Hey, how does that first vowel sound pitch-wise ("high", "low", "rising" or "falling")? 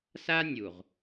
high